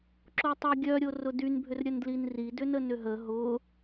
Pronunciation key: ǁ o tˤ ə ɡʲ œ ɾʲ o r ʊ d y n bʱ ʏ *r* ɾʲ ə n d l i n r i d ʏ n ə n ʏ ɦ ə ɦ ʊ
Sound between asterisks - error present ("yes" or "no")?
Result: no